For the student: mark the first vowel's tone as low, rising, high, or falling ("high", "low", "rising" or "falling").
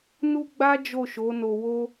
high